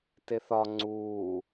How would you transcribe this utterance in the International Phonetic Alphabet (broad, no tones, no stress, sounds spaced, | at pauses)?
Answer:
t e θ ɒ ŋ͡ǀ uː